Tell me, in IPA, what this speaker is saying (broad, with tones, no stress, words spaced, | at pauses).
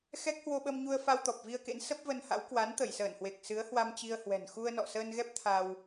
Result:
xɛ˦˥k̚hwo˧ɓə˧mɲu˧ə̯ fa˧wt̪ɔ˨˩p̚vi˧ə̯kḛ˧˥n sə˦˥p̚və˧nha̰˧˥w kwa˨˦nt̪ə˧˩jsəː˧˩nhwe˨˩k̚ sɨ˨˦ə̯hwa˧m t͡ɕi˧ə̯hwɛ̤˨˩n xu˧ə̯nɔ̰˧˨səː˧nɣɛ˦˥p̚ t̪ʰa˧w